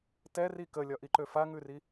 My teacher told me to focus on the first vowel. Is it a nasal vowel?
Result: no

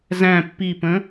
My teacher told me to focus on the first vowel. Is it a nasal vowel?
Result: yes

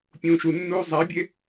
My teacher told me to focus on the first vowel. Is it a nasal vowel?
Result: yes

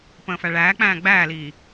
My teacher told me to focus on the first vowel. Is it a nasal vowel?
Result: yes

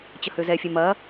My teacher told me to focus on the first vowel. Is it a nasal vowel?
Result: no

